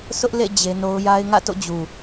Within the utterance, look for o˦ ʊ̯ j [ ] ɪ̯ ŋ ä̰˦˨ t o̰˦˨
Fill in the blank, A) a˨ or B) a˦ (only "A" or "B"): B